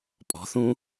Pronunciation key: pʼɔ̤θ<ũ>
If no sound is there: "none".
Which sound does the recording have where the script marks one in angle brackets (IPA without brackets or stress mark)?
ũ